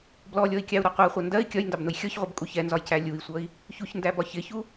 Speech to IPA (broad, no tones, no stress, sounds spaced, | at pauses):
b l ɔ lʲ ɔ i̯ kʲ ɑ u̯ ɾ ɒ qʷ ɜ χʷ ʌ n d ɜ i̯ kʲ ɒ j n d ɑ b n ʊ j xʲ ɔ ç ʁʷ ʌ b kʼ u ç ɛ n z ɒ j c æ lʲ u i̯ sʷ ʌ i̯ | ç u ç n d æ b ɒ ç ɪ ç u